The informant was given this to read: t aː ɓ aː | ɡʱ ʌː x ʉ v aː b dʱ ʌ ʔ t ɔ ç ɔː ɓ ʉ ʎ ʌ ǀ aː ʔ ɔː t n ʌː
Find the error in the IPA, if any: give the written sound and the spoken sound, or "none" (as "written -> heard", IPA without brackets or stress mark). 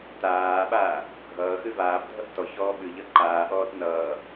ǀ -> ǃ